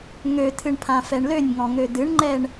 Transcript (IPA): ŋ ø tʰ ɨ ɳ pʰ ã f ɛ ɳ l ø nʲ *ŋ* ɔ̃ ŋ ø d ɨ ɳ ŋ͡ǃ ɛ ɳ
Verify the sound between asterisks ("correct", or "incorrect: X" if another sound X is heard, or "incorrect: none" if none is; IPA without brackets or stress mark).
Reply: correct